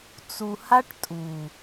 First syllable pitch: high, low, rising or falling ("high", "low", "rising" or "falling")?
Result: low